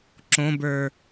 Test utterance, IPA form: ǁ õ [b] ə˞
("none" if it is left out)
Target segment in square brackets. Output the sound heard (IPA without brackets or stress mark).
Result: b